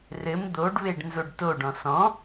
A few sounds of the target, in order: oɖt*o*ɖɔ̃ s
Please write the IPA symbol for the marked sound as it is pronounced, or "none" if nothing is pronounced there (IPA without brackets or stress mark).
o